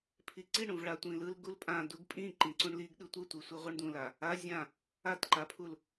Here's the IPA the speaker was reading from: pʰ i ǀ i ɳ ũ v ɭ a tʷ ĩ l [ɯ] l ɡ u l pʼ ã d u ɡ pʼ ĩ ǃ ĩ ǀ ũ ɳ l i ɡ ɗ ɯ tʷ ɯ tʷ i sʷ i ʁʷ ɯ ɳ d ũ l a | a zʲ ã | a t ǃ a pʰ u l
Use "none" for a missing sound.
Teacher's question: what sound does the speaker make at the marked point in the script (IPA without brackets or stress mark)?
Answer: ɯ